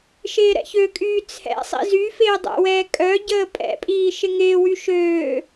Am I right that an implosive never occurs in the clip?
yes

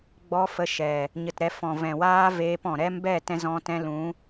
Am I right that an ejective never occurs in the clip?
yes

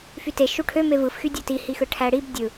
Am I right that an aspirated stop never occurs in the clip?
no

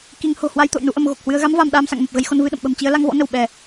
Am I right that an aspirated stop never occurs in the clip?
yes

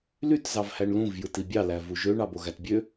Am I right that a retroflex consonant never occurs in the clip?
no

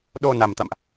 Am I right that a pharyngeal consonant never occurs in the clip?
yes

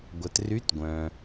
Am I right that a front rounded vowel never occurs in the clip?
no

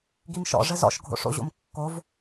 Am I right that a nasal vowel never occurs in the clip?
yes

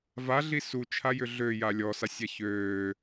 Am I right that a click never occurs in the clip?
yes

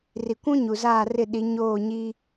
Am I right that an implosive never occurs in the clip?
no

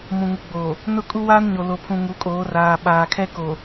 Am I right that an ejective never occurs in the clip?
no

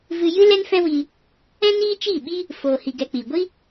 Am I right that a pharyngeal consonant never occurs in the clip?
yes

